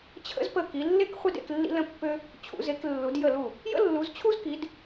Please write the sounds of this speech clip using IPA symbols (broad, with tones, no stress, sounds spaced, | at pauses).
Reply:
t͡ɕʰ ə̰˥ z p ə˥˩ k i˨˦ lː e˥ k χʷ i˥ d ḛ˨˦ k lː ḭ˥ l ə̃˥ pː ø˥ | t͡ɕʰ ṵ˨˦ z e˨˦ k lː u˨˦ d j ə˥˩ l u˥˩ | j ə̰˥ lː u˨˦ z t͡ɕʰ u˥ z k i˨˦ d